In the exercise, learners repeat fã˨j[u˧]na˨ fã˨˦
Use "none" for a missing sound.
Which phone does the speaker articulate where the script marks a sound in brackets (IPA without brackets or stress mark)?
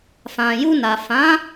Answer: u˧